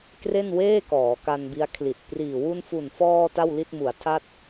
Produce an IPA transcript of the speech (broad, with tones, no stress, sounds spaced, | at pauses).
k r e˥˩ n w eː˥˩ k ɔː˩˦ k a˧ n b i˦˥ a̯ kʰ l i˨˩ t̚ p r iː˨˩ w u˧ n f u˨˩ n f ɔː˧ t a˥˩ w l i˥˩ t̚ m u˩˦ a̯ tʰ a˥˩ t̚